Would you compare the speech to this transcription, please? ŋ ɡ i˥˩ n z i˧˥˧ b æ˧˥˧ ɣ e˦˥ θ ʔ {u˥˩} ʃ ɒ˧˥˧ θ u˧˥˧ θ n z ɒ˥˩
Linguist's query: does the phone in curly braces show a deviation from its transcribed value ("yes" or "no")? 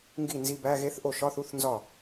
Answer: yes